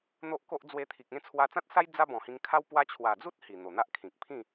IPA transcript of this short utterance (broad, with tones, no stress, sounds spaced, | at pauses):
n̪ o˦ ʔ k o˦ ʔ d͡z w e˧ t̪ʰ i˨ k̚ ẽ˥˧ t͡sʰ w a˧ t͡s ã˦ t̚ s a˦ j d͡z a˦ b ɔ̃˨˩ h ĩ˧ ŋ kʰ a˦ w p w a˧ t͡ɕʰ w a˨˩ d͡z u˦ t̚ h i˨˩ n̪ o˨˩ n̪ a˦ ʔ kʰ ĩ˨ k̚ pʰ ĩ˥˧